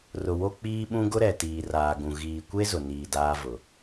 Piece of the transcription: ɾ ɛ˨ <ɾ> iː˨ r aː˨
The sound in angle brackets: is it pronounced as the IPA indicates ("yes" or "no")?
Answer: no